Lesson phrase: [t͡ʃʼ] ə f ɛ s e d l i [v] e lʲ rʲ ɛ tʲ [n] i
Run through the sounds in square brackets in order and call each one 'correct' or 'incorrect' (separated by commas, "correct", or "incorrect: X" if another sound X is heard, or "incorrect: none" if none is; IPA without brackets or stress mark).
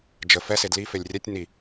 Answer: incorrect: d͡ʒ, incorrect: f, correct